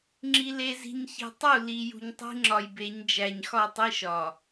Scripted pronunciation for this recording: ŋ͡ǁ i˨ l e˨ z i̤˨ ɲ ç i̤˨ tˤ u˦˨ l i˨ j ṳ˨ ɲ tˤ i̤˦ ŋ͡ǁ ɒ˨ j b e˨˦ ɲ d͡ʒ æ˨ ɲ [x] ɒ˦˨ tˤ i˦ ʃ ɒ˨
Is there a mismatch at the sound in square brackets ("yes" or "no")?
no